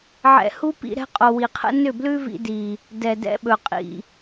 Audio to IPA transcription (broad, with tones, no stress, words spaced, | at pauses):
ʕɛ̰˨ hu˦pḭ˧ ɾɛ̤˧qʼo˨wi˨qʰə̰˧ nʏ˦˨blʉ˦vḭ˧ di˨ | dɛ˨dɛ̰˧ɓɵ˨ qʼḭ˨